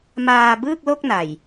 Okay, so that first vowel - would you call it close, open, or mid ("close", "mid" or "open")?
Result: open